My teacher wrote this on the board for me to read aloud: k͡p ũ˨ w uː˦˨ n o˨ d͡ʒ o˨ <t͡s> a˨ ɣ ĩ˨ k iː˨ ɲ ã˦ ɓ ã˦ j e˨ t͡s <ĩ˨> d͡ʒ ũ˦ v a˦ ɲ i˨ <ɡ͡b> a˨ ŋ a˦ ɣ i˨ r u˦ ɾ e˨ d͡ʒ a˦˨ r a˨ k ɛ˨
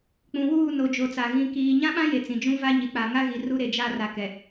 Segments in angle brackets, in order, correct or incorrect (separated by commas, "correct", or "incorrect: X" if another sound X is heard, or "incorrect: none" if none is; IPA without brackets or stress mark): correct, correct, incorrect: k͡p